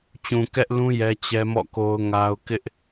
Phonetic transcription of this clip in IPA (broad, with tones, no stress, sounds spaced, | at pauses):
t͡ɕ ũ˨ k ɛ˦ ʔ l ũ˦ j ɛ˦ t͡ɕ ɛ˦ m ɔ̰˦˨ k o˦ ʊ̯ ŋ a˦ ʊ̯ k ɪ˦ ʔ